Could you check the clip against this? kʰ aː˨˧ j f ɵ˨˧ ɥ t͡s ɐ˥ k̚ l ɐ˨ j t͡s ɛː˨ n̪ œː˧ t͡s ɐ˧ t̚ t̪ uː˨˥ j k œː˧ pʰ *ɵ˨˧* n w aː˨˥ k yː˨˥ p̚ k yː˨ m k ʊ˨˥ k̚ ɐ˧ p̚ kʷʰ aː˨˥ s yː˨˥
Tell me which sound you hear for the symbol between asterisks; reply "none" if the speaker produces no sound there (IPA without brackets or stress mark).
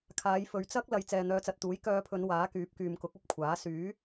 ɵ˨˧